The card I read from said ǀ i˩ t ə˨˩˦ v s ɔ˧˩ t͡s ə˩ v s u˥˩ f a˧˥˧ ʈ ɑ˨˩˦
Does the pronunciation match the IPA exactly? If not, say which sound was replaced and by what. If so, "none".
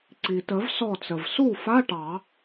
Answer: none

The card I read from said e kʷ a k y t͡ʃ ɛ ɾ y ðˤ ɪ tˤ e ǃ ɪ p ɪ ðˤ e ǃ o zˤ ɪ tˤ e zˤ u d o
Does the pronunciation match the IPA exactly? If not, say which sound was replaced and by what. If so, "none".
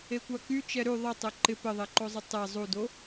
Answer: none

